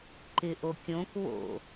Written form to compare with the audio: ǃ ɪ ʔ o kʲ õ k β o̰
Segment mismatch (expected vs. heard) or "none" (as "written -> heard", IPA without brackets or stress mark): none